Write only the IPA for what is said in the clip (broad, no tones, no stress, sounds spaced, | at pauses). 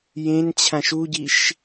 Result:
j ẽ n t͡ɕʰ ã ʃ u ɟ i ʃ